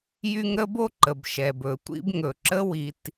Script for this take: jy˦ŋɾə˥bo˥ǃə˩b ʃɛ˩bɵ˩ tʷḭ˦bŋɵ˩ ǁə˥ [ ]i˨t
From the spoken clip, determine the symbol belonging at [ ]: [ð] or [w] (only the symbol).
w